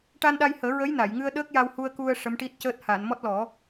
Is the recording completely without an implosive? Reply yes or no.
no